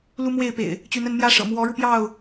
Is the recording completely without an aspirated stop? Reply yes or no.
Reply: yes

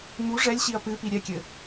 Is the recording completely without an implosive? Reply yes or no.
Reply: yes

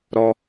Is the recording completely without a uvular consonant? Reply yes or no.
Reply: yes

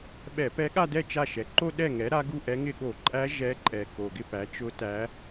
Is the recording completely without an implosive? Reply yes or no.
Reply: no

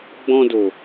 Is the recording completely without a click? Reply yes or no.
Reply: yes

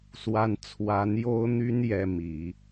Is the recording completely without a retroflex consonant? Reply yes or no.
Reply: yes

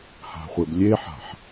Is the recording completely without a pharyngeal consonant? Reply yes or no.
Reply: no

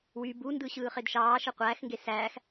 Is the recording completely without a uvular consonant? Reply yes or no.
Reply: no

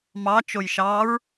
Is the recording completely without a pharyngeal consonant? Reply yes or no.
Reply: yes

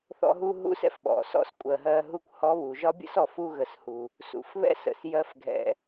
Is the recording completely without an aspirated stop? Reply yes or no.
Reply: yes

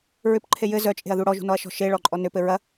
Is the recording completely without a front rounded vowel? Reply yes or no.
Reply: no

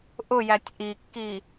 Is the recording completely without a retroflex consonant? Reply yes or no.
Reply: yes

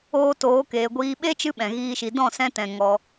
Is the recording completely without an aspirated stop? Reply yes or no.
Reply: yes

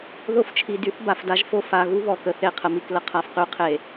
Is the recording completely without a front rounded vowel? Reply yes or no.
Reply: no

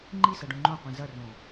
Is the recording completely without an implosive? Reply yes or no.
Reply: yes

